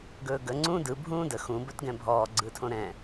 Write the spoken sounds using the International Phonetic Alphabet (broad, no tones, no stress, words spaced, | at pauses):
ɡɵːɡə ŋ͡ǀũːdɯ bʱũːdə xũ bɵtɡɛ̃bʱɔː ɡ͡ǀɯtʰõɾɛ̃